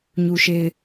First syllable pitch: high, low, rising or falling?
low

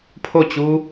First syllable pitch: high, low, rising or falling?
falling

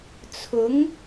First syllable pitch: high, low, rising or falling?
rising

